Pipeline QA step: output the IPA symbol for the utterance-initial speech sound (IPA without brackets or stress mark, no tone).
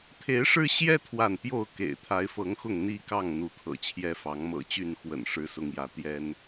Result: t̪ʰ